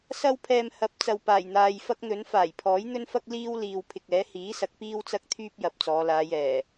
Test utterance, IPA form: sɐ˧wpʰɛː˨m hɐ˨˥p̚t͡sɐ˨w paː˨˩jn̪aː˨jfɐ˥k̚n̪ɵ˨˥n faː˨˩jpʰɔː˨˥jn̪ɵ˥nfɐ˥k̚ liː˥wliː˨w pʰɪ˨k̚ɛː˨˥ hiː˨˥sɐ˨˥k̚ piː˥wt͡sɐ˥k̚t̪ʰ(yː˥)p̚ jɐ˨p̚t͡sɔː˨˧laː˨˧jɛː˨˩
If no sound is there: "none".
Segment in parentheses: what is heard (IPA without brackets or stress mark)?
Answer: yː˥